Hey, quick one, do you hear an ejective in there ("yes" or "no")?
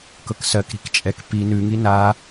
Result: yes